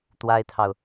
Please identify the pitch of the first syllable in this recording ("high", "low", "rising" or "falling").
high